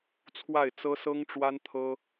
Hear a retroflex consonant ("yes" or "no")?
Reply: yes